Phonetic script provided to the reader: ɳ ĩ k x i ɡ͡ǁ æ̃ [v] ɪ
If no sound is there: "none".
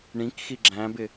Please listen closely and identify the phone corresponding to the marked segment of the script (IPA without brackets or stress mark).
b